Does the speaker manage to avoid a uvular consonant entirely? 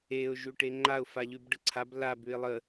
yes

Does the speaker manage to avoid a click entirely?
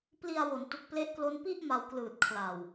yes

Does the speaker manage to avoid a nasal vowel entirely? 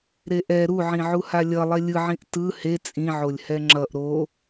no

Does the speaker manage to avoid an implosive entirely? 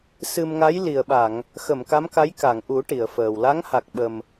no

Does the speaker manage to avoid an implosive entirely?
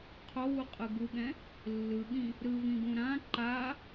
no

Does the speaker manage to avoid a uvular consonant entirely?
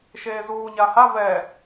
yes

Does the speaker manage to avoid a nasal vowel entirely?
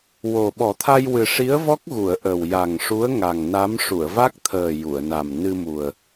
yes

